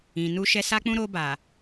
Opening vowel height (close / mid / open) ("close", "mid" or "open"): close